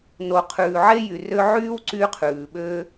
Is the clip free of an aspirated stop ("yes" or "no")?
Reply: no